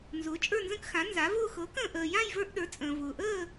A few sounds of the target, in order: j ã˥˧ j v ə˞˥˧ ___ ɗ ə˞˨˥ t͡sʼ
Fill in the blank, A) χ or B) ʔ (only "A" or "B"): B